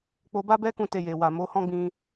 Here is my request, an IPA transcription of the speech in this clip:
k͡p o˧ b a˦ b ɛ˦ k ũ˧ t e˧ j e˨ w a˨ m o˨˦ h ɔ̃˦ ɡ͡b ĩ˧

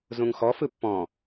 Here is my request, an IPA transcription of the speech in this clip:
z ũ ŋ x ɔ f ɯ pː ɔ̃

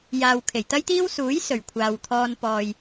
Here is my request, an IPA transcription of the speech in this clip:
j aː˨ w kʰ e˨˩ j t̪ ɐ˥ j t̪ iː˥ w s uː˨˥ j s ɵ˨˩ ɥ kʷʰ aː˨ w t̪ʰ ɔː˧ n p ɔː˨ j

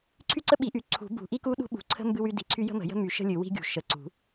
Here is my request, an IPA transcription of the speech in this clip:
ǀʰ y˥ ǀ ə˥ ɓ i˨˩˦ ʔ y˨˩˦ ǀʰ ṳ˨˩˦ b ṳ˨˩˦ ʔ i˥ k u˥ ɗ ṳ˥ ɓ ṳ˨˩˦ ǀʰ ə̤˥ m b ɨ˥ w y˥ d i˨˩˦ ǀʰ y˥ j ə̤˥ m ə̤˨˩˦ j ə̤˥ m y˨˩˦ ʃ ə̤˥ lʲ ɨ˨˩˦ w i̤˥ ɡʲ ṳ˨˩˦ ʃ ə˨˩˦ ǀ ṳ˨˩˦

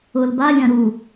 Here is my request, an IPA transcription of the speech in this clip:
ʊ l b a lʲ ã ɾ u

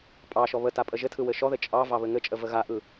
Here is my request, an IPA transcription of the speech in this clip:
pʼ ɑ ʃ ɔ β ə t a pʼ ə ʒ ɘ tʰ ɯ w ɘ ʃ ɔ ð ɘ t͡ʃʼ ɑ v ɑ β ɘ ŋ ɘ t͡ʃʼ ə v ə ɣ a ʔ ɯ

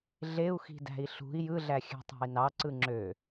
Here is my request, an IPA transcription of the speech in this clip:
ɮ e u̯ x i̤ d æ̤ i̯ ɬ ṳ i̯ j ɯ ɮ æ xʲ æ̤ tˤ æ̤ i̯ n ɑ ǀ ɯ ŋ͡ǁ ø

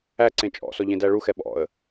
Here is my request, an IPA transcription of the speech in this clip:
æ ǀ ẽ t͡ʃʼ ɔ̰ s ɔ ʎ ẽ d æ ɭ u x ɛ ɓ ɔ̰ ə̯

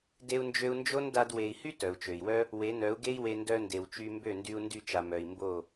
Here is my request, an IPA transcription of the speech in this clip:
d e˧ u̯ n d͡ʒ ø˧ u̯ n d͡ʒ o˦ n d a˧ d w e˨ i̯ h y˦ t œ˨ u̯ t͡ʃ ø˨ i̯ w œ˦ | w e˨˦ n œ˨˦ u̯ ɡ e˦ i̯ w e˧ n d œ˧ n d e˨ w t͡ʃ y˧ m b ø˦˨ n d y˧ u̯ n d y˦˨ t͡ʃ a˨ m œ˨ i̯ m b o˦˨

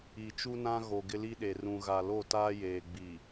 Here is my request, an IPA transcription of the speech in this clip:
i˨ t͡ʃ u˦ n ã˦ ɣ o˨ ɡ ɪ˦ l i˦ ɗ e˨ r ũ˨ ɣ a˨ l o˦˨ t aː˦ j eː˨ ɡ͡b i˨

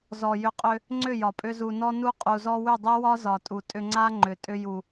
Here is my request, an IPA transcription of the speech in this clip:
z ɔ˨ j ʏ˧ qʼ ʏ˧ | ŋ͡ǀ ʏ˦˨ j ɒ˨ pʼ ʏ˧ z u˨ n ɔ˧ n u˧ qʼ u˨ z ɔ˧ w ʏ˦˨ dˤ e˦ w ɒ˦ z ɒ˨ tʼ u˨ tʼ ʏ˧ ŋ͡ǀ a˦ ŋ͡ǃ ʏ˨ tʼ ʏ˧ j u˨

